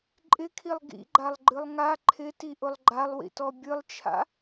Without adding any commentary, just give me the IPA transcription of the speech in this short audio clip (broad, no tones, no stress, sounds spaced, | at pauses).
ǃʼ ɪ kʰ i lˠ ɡ ḭ ɡ͡ǃ a lˠ ɡ͡ǃ ɨ lˠ ŋ a ǃʰ ɪ t i ʔ ʊ lˠ ɡ͡ǃ a lˠ w ḭ t ɔ bʲ ɨ lˠ t͡ʃʰ a̰